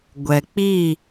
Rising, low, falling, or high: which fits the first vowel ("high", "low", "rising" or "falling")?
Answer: low